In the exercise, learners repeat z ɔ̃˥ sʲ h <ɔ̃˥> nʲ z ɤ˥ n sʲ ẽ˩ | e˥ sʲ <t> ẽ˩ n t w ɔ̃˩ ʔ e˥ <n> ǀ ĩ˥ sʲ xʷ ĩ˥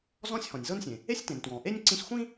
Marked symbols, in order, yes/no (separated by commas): no, yes, no